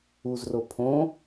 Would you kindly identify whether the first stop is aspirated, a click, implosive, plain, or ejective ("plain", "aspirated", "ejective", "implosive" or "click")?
aspirated